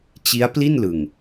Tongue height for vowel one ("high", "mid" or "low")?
high